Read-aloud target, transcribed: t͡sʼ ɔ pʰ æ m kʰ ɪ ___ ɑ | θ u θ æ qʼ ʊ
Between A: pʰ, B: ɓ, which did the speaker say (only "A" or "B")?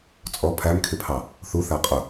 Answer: A